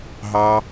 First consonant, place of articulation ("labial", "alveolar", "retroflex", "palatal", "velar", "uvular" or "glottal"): glottal